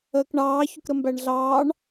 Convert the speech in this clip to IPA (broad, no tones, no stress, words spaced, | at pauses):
əːkɳɑː çʊkɾəmbæɳɮɑːɳ